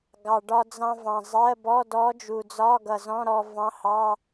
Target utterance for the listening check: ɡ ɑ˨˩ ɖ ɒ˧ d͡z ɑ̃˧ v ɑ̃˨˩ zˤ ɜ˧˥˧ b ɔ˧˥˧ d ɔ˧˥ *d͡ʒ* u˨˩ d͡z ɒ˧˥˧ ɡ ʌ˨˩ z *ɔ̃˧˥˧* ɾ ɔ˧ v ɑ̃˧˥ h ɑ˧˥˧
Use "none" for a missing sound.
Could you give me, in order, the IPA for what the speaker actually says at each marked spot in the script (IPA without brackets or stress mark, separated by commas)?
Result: d͡ʒ, ɔ̃˧˥˧